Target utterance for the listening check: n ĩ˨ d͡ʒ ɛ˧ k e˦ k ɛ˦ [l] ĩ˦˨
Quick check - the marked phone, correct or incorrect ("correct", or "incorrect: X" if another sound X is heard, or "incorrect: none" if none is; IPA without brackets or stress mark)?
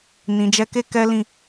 correct